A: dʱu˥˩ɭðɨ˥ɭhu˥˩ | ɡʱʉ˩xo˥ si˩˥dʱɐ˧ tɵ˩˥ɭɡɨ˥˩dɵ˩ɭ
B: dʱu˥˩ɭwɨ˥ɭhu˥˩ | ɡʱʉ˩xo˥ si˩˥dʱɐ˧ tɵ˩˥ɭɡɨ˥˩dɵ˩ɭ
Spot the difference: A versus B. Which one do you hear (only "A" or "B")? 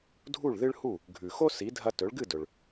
A